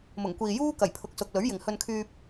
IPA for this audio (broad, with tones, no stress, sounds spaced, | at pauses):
m ʊ˨˩ ŋ kʷ iː˨ j uː˥ k ɐ˨˩ j pʰ ʊ˨˥ k̚ s ʊ˨ k̚ l ɵ˨˥ ɥ j ɪ˨ ŋ h ɵ˧ n kʰ yː˧ p̚